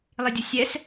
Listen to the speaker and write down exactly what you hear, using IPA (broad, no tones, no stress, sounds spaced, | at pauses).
lˠ i dʲ ʊ sʲ ɛ s